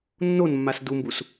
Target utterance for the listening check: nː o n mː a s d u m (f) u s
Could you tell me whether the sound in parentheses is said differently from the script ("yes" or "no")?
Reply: yes